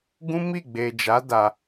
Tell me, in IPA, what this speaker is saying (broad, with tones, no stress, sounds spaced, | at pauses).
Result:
ɡ ũ˦ m i˦˨ ɡ͡b e˨ d͡ʒ a˨˦ d a˧